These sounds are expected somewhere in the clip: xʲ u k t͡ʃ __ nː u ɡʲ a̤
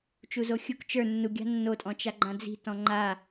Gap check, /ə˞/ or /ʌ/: ə˞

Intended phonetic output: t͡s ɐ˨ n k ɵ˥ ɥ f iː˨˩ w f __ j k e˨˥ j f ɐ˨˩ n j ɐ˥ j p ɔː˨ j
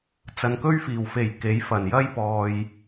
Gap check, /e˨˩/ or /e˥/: e˨˩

